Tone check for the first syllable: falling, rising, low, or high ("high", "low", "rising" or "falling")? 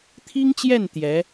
high